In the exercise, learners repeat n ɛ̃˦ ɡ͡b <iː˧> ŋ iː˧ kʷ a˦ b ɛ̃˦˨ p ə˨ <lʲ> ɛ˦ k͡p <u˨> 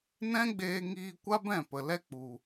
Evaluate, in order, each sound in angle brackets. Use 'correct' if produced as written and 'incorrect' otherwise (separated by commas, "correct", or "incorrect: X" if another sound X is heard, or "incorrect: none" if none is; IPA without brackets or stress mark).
incorrect: eː˧, incorrect: l, correct